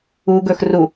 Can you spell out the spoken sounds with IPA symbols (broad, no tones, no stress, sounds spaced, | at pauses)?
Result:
u ɡ ɵ x r u